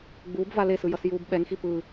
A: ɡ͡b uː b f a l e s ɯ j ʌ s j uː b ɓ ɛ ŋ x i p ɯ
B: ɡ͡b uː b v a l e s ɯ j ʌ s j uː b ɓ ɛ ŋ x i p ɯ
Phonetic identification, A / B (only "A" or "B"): B